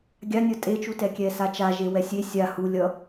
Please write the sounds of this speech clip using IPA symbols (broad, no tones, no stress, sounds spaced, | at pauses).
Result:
ɡʲ a nʲ ʌ tʼ e t͡ʃ u t ɛ kʲ ɛ s a t͡ʃ a ʒ e w ɛ sʲ e sʲ a h u lʲ ʌ